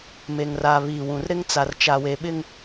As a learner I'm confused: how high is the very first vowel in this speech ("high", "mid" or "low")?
mid